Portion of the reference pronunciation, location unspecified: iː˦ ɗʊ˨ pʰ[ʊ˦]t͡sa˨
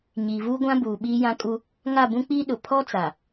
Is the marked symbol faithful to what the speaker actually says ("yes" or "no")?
no